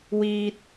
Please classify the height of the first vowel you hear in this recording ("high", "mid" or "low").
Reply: high